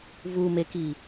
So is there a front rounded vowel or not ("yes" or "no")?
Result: no